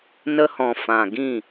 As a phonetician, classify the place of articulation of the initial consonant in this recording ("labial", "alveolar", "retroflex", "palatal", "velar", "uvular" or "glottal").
alveolar